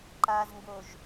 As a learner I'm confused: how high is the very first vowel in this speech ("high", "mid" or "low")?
low